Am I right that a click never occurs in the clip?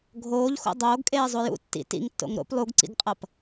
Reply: no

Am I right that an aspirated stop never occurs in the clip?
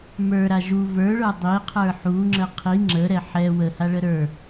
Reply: no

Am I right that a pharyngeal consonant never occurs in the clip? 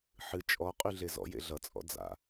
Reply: no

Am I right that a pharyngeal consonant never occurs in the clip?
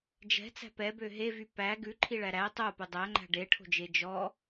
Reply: yes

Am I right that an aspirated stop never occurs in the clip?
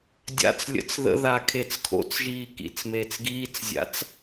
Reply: no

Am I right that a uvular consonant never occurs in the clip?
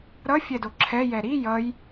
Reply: yes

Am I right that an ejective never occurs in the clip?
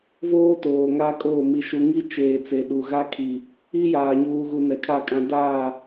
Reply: no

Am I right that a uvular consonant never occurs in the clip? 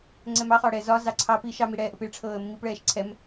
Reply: no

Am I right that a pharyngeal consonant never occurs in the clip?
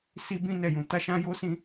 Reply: yes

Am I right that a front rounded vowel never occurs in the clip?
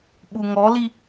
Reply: yes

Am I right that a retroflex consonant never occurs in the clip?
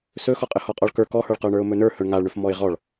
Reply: no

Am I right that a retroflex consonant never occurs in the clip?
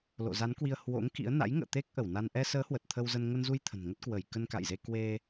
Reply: yes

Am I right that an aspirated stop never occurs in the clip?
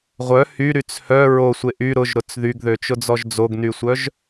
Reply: yes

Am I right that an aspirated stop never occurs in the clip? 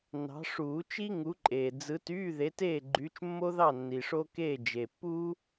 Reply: yes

